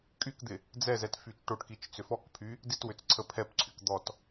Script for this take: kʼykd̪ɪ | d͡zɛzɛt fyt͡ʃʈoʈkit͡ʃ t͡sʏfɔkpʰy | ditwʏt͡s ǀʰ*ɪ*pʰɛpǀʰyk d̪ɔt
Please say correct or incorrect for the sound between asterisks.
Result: incorrect